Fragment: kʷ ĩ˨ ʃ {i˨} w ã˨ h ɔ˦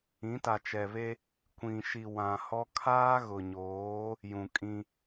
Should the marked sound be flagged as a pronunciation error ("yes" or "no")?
no